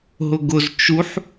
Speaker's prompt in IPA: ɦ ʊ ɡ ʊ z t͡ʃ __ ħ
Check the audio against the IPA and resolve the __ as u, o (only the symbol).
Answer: u